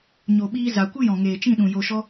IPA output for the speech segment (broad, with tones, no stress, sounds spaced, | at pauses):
ɲ o˨ ɓ iː˧ z a˨ kʷ ɨ˦ j ɔ̃˨ ŋ eː˨ t͡ʃ ĩ˦˨ ɗ ũ˨ j o˨ ʃ ɔ˧